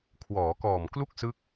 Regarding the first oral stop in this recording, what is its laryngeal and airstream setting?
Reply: aspirated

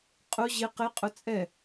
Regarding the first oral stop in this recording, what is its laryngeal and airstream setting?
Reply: ejective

